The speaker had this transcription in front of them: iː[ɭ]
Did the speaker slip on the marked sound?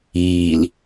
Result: yes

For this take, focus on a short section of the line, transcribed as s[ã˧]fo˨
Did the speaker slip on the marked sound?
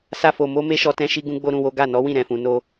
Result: yes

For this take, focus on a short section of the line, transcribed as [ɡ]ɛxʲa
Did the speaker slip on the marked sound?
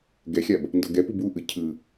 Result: no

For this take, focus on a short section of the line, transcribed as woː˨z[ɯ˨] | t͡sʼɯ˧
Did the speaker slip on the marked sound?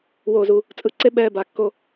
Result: yes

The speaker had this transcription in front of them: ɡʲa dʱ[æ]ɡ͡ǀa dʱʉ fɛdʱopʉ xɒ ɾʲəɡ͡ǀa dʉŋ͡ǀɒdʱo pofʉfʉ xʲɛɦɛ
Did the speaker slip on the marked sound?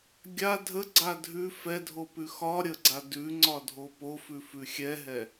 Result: yes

